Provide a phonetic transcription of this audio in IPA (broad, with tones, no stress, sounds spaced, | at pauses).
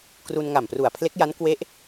k r u˧ n ŋ a˨˩ m p r u˨˩ a̯ pʰ l e˦˥ k̚ j a˦˥ n k w e˦˥ ʔ